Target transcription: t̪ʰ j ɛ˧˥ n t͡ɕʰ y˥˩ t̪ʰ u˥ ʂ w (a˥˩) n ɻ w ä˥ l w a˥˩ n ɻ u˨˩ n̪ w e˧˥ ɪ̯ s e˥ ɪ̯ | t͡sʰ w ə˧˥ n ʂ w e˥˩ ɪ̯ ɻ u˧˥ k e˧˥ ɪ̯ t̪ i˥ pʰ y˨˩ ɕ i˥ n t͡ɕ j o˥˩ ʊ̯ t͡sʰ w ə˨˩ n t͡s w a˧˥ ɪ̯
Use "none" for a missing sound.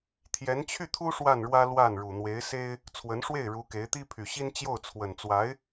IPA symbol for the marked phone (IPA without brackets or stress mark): a˥˩